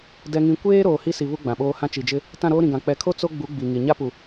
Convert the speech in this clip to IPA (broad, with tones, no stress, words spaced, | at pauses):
dɛ˨ŋĩ˨ kʷeː˦ ɾoː˨hi˦si˨ βu˦ɡ͡bã˨ɓoː˦hã˦ t͡ʃi˨d͡ʒɪ˦ | tã˦˨ɾoː˦ɾĩ˨ɡã˨ k͡pɛ˨kʰo˦ t͡so˦ɡ͡bu˨˦ ɡ͡bi˨ŋi˨ ɲa˦pu˨